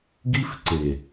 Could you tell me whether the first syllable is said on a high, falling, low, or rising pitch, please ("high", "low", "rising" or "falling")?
high